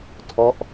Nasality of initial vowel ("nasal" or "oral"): oral